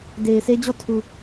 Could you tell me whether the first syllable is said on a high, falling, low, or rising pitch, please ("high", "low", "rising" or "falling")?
low